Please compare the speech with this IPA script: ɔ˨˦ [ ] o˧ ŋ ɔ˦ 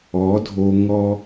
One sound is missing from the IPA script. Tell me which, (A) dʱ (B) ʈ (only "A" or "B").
A